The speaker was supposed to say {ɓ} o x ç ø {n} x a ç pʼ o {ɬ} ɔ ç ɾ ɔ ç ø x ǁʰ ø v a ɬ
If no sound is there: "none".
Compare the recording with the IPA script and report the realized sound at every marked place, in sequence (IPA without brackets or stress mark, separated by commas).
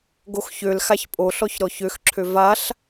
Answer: ɡ, l, ɬ